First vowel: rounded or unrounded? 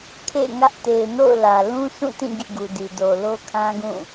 unrounded